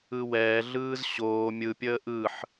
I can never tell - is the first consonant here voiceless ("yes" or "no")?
no